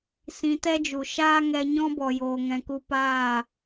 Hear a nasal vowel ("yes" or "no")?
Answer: yes